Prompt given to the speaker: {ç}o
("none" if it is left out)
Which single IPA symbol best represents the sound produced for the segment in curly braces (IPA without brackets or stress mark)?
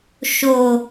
ʃ